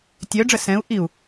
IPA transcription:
tʲ œ ɖ͡ʐ ə s ɛ̃ u̯ ʔ i u̯

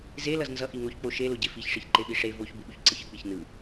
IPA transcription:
z e l ʌ z n z ʌ ʔ i ŋ o ç k͡p o ʃ e l o ɟ e f i ç ʂ i ç ǃ e ɓ i ʂ e v o ç b u ɓ u ç ǀ ɯ ç ɯ k͡p i ç n ɯ

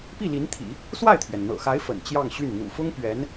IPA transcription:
p i˥˩ l i˧˥ n t̪ʰ ḭ˨˩˦ | s w a˥˩ ɪ̯ t̪ʰ ɥ ɛ˩ n n̪ ɤ̰˨˩ x a˧˥ ɪ̯ f ə̰˨˩ n t͡ɕ j ɑ˥˧ ŋ ɕ y˥˩ n n̪ ṵ˨˩ f ʊ˥ ŋ p ɥ ɛ˧˥ n

